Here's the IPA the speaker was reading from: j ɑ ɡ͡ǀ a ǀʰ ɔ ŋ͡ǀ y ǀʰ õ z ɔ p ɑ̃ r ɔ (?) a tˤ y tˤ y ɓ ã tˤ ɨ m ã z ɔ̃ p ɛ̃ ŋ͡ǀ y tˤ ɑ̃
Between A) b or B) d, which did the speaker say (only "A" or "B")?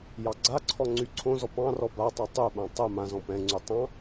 A